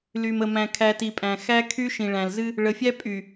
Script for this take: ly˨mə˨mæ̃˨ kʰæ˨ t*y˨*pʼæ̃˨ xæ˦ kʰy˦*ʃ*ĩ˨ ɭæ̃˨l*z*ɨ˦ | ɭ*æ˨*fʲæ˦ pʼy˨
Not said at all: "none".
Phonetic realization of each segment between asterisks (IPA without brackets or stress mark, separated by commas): i˨, ʃ, z, ə˨